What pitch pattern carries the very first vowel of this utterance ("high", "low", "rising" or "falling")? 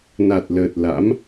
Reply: low